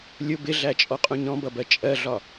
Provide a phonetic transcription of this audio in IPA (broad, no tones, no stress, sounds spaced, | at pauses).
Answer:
lʲ ʊ b ɪ ɮ æ t͡ʃʼ ɔ qʼ ũ ɲ ɔ̃ b ʌ b ɜ t͡ʃʼ ɜ ɮ ɒ